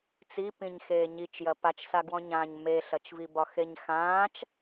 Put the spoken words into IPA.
t͡sipĩɲ xeːɲit͡ʃjɐ pat͡ʃsaɡwɔ̃ɲãːɲ meɬɐt͡ʃvibɒ xeɲxãːt͡ʃ

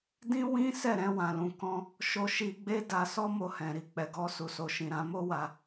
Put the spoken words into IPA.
dĩ˦ wĩ˦ sɛ˦˨ɾɛ̃˧ wã˨lũ˨kɔ̃˧ | ʃo˧ʃi˧ɡ͡be˦da˧ sɔ˦mo˧hɛ̃˨ ɾi˧k͡pɛ˨ɡɔ˨˦ su˧so˧ʃĩ˧ ɾã˧ mo˦wa˧

